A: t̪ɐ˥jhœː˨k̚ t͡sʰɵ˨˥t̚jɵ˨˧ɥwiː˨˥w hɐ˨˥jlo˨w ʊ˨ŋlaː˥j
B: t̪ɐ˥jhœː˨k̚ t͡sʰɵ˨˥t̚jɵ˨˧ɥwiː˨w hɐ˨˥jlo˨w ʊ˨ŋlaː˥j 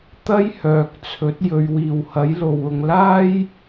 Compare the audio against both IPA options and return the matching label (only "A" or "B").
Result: B